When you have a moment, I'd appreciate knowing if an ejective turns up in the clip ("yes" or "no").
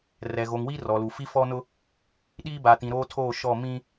no